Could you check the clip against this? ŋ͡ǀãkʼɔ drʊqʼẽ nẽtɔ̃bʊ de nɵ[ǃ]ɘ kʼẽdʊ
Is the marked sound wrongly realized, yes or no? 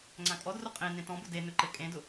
no